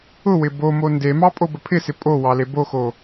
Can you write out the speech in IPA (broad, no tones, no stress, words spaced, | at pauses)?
ʊwɪ bomo ndemɑ pʼobəpʰɪsɪ pʼo wɑleboxo